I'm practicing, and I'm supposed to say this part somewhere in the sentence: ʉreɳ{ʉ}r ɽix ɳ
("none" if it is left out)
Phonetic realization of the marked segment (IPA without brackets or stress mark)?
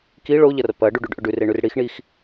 ʉ